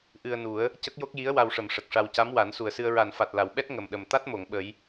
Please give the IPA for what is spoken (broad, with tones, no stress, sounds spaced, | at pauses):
ʔ ɨ˧ ə̯ n u˨˩˦ ə̯ | c ə˦˥ k̚ j o˦˥ k̚ j i˧˥ ə̯ w a˧ w ʂ ə˨˩˨ m ʂ ə˨˩ k̚ ʂ a˧ w c a˧˥ m w a˨˩˦ n s u˨˩ ə̯ s ɨ˧ ə̯ ɹ a˨˩ n f a˨˩ t̚ l a˨˩˨ w ɓ ɛ˦˥ t̚ ŋ ə˨˩ m ɗ ə˨˩ m t̪ a˦˥ t̚ m o˨˩˨ ŋ ɓ ə˨˩˦ j